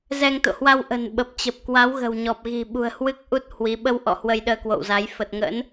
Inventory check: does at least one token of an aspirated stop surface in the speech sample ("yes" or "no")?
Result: no